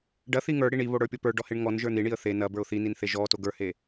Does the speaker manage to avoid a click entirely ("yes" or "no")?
yes